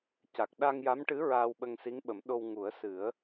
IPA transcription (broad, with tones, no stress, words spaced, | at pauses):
ca˨˩k̚ɗa˧ŋja˧˥mʈɨ˧˥ ɹaː˧wɓə˧ŋsi˧˥ŋɓə˨˩˦m ɗo˧wŋu˨˩˦ə̯sɨ˨˩˦ə̯